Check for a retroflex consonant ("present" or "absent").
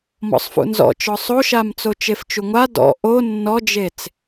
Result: absent